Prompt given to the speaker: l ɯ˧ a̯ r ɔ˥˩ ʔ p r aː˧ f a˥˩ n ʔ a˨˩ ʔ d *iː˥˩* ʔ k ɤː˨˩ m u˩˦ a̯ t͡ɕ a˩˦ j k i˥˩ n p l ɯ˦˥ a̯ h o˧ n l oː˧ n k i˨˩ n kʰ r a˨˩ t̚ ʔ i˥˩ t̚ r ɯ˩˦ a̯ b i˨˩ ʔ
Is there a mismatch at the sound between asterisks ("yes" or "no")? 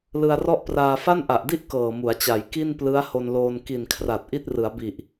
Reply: yes